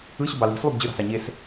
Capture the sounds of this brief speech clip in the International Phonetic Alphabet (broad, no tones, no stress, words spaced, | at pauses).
ɯɕubɑ li̤slˠub d͡ʑøɾɑ̤sɑ ɲes